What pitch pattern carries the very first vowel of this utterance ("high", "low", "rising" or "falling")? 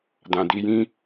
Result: low